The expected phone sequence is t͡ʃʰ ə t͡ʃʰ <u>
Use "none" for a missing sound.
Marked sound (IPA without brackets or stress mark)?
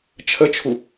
u